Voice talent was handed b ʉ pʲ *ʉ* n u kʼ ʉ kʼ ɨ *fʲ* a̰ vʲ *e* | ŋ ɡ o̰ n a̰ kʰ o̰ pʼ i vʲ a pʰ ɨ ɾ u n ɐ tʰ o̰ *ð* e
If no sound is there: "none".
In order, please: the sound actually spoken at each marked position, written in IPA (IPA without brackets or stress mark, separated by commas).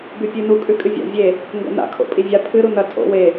ʉ, vʲ, e, w